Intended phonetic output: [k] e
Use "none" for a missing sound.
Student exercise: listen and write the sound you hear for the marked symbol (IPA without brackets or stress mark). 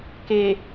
k